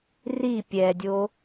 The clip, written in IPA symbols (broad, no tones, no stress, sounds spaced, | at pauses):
r i pʲ ɛ dʲ o